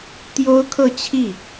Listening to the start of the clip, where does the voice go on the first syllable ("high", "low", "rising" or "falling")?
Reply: high